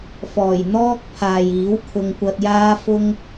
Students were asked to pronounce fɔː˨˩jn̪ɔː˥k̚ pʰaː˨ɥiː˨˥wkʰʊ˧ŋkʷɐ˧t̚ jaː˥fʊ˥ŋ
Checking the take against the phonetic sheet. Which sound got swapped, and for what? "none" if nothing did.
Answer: ɥ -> j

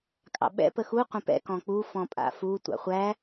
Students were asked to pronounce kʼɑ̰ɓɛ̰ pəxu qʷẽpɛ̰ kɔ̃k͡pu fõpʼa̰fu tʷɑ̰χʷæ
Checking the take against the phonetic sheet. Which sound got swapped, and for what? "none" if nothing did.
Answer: õ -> ɔ̃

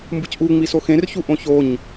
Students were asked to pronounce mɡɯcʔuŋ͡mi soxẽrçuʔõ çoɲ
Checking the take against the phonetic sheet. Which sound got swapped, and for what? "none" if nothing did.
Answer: ɡ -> b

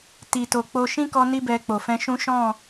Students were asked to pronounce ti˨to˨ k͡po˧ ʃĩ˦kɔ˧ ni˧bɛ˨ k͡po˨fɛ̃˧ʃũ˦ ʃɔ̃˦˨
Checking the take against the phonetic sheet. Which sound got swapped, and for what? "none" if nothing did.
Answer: none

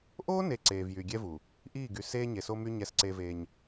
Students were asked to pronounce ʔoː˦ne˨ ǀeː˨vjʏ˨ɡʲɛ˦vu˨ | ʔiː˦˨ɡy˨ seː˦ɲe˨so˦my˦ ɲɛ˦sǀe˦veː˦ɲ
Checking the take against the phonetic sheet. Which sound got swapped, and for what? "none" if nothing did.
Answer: ʏ˨ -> y˨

